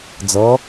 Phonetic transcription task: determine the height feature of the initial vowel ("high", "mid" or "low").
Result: mid